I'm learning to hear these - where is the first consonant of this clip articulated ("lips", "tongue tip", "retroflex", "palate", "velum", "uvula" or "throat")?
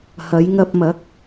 throat